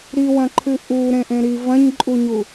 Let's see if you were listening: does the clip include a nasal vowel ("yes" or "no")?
yes